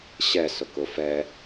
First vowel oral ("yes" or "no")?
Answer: yes